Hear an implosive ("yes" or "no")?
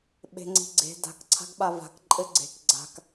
yes